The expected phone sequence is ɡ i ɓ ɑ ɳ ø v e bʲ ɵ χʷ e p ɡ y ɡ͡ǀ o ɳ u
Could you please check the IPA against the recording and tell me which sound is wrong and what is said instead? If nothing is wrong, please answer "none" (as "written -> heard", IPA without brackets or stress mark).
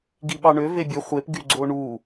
none